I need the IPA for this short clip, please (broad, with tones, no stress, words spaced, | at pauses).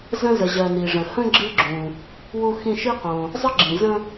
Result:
zə̃˥zə˨ ʑɜ˨ni˩ʐə̃˩ hə̃˥ɡ͡ǁɨ˦ɡ͡ǁũ˩ | wu˦xĩ˦ʃi˥ qõ˩ | zˤə˥ɡ͡ǁĩ˩zə̃˦